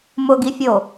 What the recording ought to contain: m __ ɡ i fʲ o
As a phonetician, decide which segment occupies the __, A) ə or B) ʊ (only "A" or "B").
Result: B